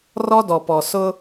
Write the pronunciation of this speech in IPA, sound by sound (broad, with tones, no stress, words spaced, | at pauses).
rɔ˦dɔ˨pɔ˨ sʊ˦